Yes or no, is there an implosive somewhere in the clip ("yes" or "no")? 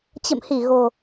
no